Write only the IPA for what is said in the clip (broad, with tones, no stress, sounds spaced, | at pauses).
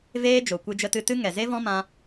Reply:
v eː˦ d͡ʒ o˨ kʷ ɨ˧ d͡ʒ ə˧ t ɨ˧ t ɨ˦ ŋ ɛ˨ z e˦ v ɔ̃˦ m ã˦